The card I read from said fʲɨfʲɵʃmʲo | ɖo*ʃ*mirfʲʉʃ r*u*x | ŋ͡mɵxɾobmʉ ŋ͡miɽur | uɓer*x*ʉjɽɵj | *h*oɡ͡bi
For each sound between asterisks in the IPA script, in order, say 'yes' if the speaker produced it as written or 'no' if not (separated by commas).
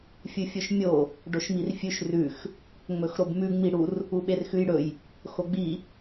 yes, no, yes, no